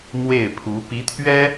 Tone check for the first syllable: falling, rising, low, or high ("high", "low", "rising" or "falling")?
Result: falling